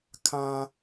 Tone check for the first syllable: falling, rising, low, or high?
low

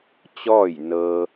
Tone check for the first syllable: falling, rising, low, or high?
falling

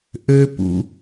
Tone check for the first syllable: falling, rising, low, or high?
high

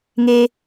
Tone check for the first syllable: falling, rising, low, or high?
high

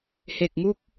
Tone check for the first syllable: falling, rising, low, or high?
low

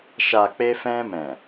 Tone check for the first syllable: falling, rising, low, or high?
low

